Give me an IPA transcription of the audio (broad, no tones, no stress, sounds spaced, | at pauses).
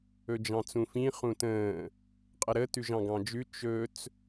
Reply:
ɵ d͡ʒ ɑ̃ t͡s ũ f ĩ χ ũ t ə̃ː | qʼ ə ɾ ə t ʉ ʒ ɑ̃ ɡ ɑ̃ d͡ʒ ʉ t͡ʃ ɵ t͡s